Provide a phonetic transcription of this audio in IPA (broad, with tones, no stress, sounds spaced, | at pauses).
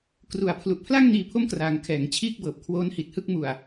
k r u˨˩ a̯ pʰ l u˨˩ ʔ pʰ l a˥˩ ŋ n iː˧ pʰ o˥˩ m k r aː˩˦ ŋ kʰ ɛː˩˦ ŋ t͡ɕʰ iː˥˩ k̚ b ɤː˨˩ p̚ kʰ w oː˦˥ n h i˨˩ t̚ h ɯ˥˩ k̚ m u˨˩ a̯